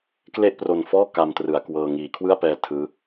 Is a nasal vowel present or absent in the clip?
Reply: absent